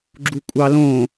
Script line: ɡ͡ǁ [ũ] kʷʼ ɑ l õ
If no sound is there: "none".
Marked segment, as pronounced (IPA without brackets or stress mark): u